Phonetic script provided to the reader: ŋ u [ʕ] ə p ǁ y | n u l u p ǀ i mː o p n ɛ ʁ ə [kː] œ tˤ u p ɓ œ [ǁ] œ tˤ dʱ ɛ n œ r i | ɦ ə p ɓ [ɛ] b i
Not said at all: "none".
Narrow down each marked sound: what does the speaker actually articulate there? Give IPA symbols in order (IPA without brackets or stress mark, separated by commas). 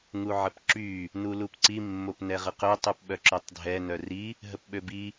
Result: ʕ, q, ǁ, ø